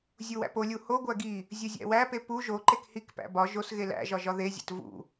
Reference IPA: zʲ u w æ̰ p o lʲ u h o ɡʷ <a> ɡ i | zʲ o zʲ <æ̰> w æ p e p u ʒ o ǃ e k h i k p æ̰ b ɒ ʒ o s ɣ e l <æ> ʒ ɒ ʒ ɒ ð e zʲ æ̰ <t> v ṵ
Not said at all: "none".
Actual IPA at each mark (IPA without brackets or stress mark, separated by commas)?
æ, æ̰, æ̰, t